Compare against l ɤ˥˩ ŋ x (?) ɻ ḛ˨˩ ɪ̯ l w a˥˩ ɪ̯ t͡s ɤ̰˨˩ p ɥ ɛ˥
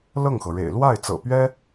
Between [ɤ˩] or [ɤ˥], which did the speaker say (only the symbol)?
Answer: ɤ˩